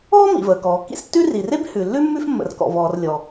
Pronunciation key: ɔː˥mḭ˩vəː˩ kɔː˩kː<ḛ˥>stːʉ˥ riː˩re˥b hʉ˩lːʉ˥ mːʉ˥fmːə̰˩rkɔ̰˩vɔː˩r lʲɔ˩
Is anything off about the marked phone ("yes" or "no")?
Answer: yes